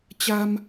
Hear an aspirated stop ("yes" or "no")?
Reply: no